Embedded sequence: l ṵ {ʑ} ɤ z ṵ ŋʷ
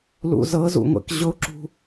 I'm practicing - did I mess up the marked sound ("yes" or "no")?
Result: yes